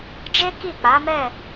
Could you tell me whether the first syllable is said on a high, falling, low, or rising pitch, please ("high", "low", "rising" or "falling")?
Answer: high